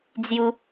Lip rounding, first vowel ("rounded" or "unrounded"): rounded